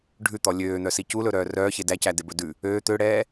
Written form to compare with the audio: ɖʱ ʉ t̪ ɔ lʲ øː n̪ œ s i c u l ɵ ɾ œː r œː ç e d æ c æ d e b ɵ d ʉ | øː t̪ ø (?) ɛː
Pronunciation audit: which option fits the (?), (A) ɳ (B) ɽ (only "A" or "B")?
B